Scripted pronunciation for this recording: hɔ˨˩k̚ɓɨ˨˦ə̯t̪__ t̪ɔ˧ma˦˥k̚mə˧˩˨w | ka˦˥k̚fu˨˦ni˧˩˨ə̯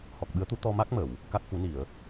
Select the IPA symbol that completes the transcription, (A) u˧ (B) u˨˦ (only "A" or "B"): B